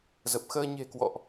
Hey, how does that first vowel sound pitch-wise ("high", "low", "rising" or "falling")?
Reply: low